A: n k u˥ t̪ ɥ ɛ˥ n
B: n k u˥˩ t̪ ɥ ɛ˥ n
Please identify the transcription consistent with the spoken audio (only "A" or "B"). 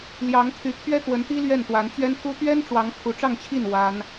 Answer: A